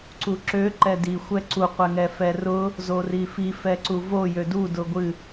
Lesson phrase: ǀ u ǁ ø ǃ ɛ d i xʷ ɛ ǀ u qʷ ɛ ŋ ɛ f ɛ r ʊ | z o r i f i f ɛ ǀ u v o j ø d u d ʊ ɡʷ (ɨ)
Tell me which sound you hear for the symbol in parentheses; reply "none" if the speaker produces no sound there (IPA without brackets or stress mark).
ɨ